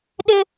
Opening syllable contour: high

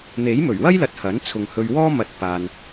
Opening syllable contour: rising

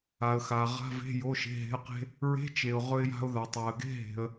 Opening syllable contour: low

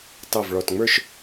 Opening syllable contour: falling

